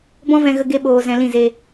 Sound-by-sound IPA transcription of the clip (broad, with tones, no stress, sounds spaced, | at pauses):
b ɔ̃˦ v ɛ̃˧ ɣ ə˧ ɡ e˦ ɓ oː˧ z ɛ̃˧ l ĩ˦˨ z e˧